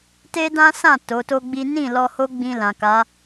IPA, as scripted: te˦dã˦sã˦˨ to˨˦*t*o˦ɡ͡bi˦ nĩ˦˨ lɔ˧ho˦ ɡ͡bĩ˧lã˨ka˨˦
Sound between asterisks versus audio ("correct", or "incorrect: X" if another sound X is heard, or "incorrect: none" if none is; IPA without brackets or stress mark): correct